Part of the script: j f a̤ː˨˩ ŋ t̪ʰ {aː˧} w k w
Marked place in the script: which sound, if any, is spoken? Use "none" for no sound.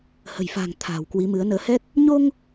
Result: a̤ː˨˩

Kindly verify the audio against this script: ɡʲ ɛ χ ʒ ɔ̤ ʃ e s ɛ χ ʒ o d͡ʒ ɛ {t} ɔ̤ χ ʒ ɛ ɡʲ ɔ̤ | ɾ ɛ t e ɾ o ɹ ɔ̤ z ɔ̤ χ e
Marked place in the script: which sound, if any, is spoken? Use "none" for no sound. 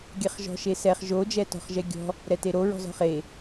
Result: t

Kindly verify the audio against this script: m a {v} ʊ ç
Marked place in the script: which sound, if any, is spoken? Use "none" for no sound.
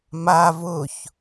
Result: v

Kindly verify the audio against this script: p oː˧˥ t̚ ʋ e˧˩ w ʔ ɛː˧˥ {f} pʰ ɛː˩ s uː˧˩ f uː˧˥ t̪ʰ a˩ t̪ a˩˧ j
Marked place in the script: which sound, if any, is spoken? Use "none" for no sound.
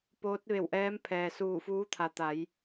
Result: m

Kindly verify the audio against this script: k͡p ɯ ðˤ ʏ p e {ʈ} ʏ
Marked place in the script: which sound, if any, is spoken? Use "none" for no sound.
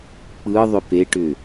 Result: ʈ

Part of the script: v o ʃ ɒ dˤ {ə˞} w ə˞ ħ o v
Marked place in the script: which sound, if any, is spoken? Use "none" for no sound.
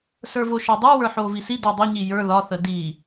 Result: ə˞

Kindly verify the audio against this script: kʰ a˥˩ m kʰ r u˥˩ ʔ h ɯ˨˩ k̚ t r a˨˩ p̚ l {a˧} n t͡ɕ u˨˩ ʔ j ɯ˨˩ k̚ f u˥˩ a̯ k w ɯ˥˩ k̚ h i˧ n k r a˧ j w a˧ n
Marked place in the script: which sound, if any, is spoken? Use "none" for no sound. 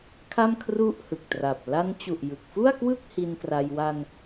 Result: a˧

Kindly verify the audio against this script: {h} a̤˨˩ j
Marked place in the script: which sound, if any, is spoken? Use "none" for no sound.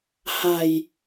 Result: h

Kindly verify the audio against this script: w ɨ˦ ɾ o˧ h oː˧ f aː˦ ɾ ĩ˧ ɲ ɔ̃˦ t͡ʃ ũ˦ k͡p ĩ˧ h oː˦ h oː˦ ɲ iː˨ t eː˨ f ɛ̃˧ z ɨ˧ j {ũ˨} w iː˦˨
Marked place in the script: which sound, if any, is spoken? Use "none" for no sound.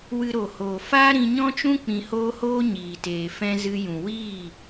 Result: ũ˨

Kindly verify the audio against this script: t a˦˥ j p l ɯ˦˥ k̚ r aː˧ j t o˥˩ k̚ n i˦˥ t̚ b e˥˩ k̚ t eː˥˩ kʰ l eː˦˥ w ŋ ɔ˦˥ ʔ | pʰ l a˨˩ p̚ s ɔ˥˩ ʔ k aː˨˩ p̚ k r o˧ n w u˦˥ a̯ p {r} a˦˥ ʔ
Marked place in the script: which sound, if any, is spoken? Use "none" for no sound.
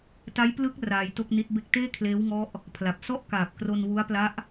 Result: l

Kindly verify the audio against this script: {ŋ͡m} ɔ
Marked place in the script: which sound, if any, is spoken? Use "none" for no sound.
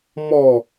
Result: m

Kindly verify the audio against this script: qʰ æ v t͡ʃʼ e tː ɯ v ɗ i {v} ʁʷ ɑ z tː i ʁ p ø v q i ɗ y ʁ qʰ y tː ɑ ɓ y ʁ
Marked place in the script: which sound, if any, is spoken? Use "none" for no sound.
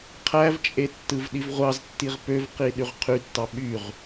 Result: v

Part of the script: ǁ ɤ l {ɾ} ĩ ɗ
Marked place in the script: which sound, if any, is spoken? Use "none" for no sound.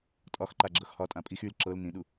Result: n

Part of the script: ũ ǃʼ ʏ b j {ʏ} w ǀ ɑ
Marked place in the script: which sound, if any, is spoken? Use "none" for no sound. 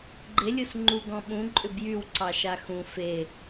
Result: y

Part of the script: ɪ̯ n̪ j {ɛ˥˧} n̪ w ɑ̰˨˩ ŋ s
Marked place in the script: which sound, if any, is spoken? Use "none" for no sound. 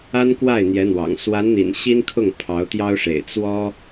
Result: ɛ˧˥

